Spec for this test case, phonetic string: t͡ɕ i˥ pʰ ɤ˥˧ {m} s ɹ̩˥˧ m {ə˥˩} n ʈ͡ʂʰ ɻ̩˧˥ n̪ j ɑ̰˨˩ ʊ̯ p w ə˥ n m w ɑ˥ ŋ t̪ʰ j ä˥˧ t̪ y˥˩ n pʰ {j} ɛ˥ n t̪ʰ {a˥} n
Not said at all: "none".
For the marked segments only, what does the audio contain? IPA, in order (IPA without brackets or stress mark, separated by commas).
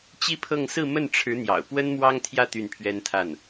ŋ, ə˥˩, ɥ, a˥˩